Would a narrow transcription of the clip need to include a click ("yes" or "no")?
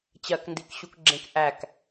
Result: yes